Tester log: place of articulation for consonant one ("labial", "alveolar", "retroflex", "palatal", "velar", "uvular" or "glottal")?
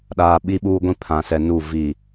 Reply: alveolar